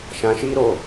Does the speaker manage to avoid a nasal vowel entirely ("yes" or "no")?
no